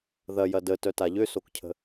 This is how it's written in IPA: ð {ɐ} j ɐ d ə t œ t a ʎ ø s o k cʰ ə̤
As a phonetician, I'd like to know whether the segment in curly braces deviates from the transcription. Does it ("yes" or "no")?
no